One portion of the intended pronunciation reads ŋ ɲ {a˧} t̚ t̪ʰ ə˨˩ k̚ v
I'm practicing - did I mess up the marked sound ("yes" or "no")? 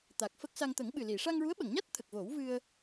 yes